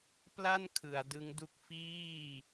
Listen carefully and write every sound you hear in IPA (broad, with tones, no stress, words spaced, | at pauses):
pla˥˩nkʰɯ˩˦a̯ dɯ˦˥ŋdu˥˩k̚ fiː˥˩